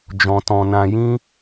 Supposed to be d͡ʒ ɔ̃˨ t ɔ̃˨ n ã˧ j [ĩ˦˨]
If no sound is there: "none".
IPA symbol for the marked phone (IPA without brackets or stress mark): ĩ˦